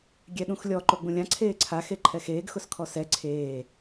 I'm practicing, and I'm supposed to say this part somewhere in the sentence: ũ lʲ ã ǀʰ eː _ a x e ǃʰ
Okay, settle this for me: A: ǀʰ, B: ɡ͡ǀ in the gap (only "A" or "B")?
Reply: A